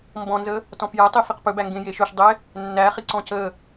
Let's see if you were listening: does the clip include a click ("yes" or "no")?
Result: yes